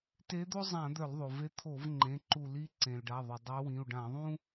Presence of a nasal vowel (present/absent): present